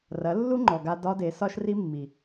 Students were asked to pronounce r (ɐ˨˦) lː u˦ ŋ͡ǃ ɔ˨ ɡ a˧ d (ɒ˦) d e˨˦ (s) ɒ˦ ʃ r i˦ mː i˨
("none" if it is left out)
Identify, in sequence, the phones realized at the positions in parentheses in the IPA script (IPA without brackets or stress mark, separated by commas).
ɐ˨˦, ɒ˦, s